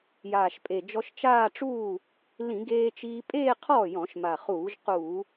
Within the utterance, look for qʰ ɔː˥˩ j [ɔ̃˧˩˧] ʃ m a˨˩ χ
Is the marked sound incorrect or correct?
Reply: correct